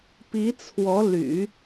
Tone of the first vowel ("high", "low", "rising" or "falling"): rising